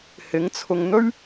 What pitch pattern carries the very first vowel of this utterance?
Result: rising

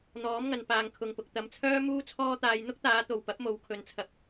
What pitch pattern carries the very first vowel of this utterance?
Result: rising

